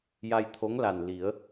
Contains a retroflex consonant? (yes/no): no